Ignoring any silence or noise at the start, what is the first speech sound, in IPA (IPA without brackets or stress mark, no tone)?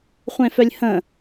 χʷ